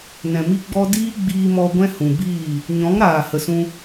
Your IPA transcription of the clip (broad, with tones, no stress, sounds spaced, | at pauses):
n ɛ̃˨ m i˦ ɡ͡b ɔ˦ d iː˦ ɡ͡b iː˧ m ɔ˧ ɡʷ ɛ̃˦ h ũ˨ b iː˦˨ | ɲ ɔ̃˨˦ ŋ ɾ aː˨ h ə˨ s ũ˧